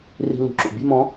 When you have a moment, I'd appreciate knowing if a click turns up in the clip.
yes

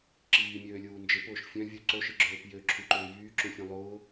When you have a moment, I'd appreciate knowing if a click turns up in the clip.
yes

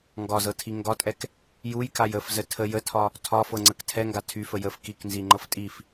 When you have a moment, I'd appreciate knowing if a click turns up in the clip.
yes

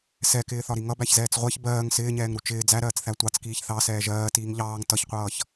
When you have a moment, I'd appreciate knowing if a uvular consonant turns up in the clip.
yes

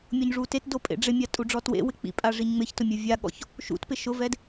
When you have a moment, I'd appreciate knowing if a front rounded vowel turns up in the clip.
no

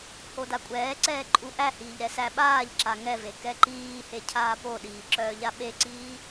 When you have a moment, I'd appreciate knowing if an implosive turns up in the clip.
yes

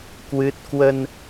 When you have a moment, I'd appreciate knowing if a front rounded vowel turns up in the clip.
no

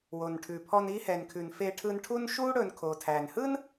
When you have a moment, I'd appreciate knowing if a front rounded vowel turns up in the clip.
no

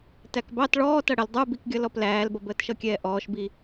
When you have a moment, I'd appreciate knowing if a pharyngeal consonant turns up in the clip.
no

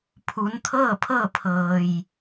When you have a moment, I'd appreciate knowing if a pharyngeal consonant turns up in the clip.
no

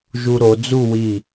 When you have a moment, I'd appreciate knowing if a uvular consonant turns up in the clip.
no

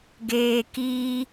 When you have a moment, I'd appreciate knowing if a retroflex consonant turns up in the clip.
no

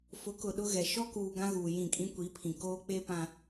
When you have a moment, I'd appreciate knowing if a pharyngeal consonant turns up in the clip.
no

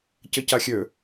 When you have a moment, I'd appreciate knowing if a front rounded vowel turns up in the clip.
yes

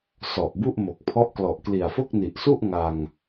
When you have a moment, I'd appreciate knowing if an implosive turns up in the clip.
no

